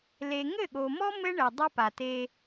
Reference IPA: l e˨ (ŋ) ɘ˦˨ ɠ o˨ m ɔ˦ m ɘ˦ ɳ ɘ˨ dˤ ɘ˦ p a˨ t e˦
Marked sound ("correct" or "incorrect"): correct